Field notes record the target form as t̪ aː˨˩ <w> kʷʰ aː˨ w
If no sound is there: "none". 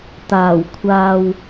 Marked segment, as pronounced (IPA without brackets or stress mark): w